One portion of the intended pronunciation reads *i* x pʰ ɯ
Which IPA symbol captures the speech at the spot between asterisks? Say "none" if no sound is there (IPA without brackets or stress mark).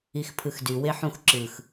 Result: i